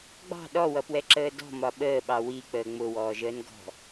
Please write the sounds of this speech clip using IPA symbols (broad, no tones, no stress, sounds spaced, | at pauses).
ɡ͡b ɑ̤ ɗ ɔ w ʌ p w ɛ ǁ əː d ɔ̤ m ɒ ɓ əː ɓ ɑ w i k͡p əː ŋ͡m ʊ w ɔː ʒ əː n ɡ ɔ̤